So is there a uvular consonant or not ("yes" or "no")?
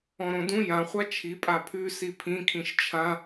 yes